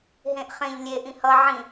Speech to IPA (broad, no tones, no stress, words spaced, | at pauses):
ɦẽʔ χẽʎ lʲe ʔĩhʌ ʕĩ